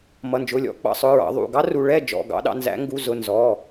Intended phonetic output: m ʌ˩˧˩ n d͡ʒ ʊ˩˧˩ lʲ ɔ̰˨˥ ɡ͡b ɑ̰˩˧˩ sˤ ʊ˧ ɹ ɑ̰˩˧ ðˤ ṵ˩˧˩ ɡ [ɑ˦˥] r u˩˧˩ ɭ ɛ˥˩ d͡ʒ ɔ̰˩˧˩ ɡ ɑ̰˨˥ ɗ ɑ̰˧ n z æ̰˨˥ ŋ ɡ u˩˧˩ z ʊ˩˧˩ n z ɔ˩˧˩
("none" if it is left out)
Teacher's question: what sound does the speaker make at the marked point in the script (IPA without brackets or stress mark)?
ɑ˦˥